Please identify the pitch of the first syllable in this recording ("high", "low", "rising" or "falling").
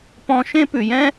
high